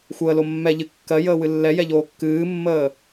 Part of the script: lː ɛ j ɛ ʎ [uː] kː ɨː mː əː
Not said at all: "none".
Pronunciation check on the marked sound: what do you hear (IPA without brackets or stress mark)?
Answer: oː